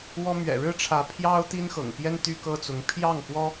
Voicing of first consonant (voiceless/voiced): voiced